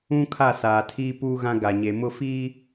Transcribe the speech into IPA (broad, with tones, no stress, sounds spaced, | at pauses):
ũ˦ kʰ a˦˨ s aː˨ tʰ iː˦ p uː˦ ɣ ã˦ ɡ a˨ ɲ e˨ m ʊ˦˨ f iː˦